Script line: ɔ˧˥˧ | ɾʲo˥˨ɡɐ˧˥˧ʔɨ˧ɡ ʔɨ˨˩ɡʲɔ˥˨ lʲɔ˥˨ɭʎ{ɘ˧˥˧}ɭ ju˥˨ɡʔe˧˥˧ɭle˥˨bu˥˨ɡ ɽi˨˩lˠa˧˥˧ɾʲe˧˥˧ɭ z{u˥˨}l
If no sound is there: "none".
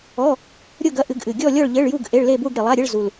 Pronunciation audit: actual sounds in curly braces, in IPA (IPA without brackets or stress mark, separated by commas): ɘ˧˥˧, u˨˩